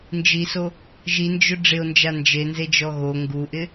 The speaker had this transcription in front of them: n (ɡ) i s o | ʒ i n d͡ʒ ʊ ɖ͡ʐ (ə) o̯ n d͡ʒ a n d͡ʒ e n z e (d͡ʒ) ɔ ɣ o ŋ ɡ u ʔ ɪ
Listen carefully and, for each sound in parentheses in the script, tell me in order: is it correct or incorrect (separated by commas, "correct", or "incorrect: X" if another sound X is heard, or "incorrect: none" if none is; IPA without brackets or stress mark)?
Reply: incorrect: d͡ʒ, incorrect: ɪ, correct